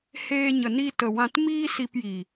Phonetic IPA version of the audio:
h eː˧ ɲ ə˨ n i˧ t ə˨ w ã˧ t m iː˦ s i˧ p j i˨

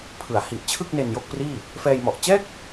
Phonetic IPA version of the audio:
pʰ ɯ˩˦ a̯ h i˨˩ ʔ t͡ɕʰ ɯ˥˩ k̚ n e˧ n j o˥˩ k̚ p r iː˥˩ | f ɛː˧ j m ɔ˨˩ ʔ t͡ɕ ɛː˥˩ k̚

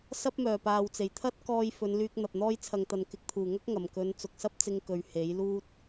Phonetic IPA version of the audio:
s ɐ˥ p̚ m œː˨˩ p aː˨ w t͡s e˨˩ j t̪ʰ ɐ˥ t̚ k ɔː˧ j f ɵ˨˧ n l yː˧ k̚ n̪ ɐ˨ p̚ n̪ ɔː˧ j t͡sʰ ɐ˨ ŋ t̪ ɐ˨ n k ɪ˨ k̚ t̪ʰ uː˨˩ ŋ ɐ˥ k̚ ŋ ɐ˨˩ m k ɵ˨˧ n t͡s ʊ˨ k̚ s ɐ˥ p̚ t͡s ɪ˧ ŋ k ɵ˨ ɥ h e˨˥ j l uː˥ t̚

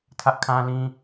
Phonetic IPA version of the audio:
tʰ ä˦ ʔ kʰ ã˦ l ĩ˦

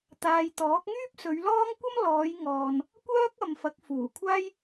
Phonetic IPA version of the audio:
t̪ aː˨ j t̪ ɔː˨˥ k̚ ŋ yː˥ p̚ s ɵ˨˧ ɥ l ɔː˥ ŋ kʷ ɐ˥ m l ɔː˨˧ j ŋ ɔː˨ n | kʷ œː˥ k̚ ɐ˨ m f ɐ˨˥ k̚ f uː˨˩ kʷʰ aː˥ j

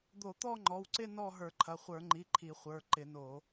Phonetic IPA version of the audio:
d̪ o˧˩˧ t̪ ɔ˥˧ ŋ͡ǃ ɔ˩˧˩ w ǀ ɪ˥˧ n ɔ˥˧ ɦ ə˞˧˩˧ ǃʰ ɐ˩˧˩ χʷ ə˞˧˩˧ ŋ͡ǃ i˩˧˩ ǃʰ i˧˩˧ χʷ ə˞˩˧˩ ǃ ɪ˧˩˧ n o˧˩˧

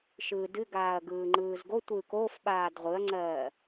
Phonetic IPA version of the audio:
ʃ ɯː d ɨ ɡ aː ɐ̯ ɡ ɯː ŋ͡ǃ ɯː z ɡ o tʷ ɯː k o f ɓ aː d ʁʷ ɯ ɐ̯ ŋ͡ǀ ɜː

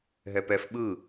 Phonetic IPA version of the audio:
ɦ ɛ p ɛ f ɓ ɯː

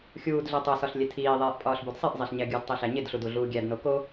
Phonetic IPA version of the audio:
xʲ uː d ɮ e tˤ o s ɒ ɬ lʲ e tʰ iː ðˤ eː ʔ pʼ ɒː ɬ b u d sˤ i ʔ zˤ e ɬ ɲ æ ɡʲ u d tˤ i ɬ æ ɲ e d ɬ u d u ɮ uː ɡʲ æ d n o k o

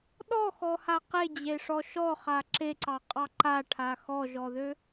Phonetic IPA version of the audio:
ɗ ɔ x ɔ h a q e d͡ʑ e ʂ ɔ ʃ ɔ χ a ǁ e ǀ ɑ qʼ ɑ ǃ a ʈʰ a x ɔ ʒ ɔ ð ø

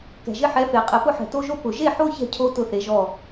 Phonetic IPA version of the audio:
k ɛ̤˨ ʒ ɪ˦ ħ ɛ˨˥ f e˨ qʼ ɛ˨ p ʊ˥˨ ħ ɛ̤˨ t o˦ ʒ o˦ p ʊ˨ ʒ e˥˨ ħ o˦ ç ɛ̤˦ cʰ o˦ t ʊ˦ θ e˨˥ ʒ ɔ˥˨

